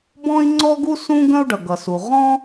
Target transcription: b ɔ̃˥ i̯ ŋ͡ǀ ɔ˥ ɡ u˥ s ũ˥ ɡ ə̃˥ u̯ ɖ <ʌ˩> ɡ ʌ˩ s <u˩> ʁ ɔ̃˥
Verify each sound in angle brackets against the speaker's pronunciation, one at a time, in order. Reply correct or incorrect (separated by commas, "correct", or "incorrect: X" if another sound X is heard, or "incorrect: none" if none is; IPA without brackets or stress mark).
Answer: correct, correct